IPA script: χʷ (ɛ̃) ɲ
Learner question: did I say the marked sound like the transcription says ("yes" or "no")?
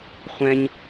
yes